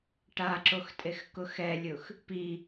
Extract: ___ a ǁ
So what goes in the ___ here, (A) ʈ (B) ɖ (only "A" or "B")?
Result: A